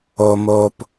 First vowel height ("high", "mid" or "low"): mid